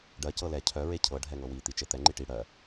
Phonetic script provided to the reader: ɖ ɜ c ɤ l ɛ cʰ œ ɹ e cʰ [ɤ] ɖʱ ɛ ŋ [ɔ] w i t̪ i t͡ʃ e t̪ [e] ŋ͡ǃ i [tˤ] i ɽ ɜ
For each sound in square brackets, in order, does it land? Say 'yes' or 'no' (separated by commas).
yes, no, no, no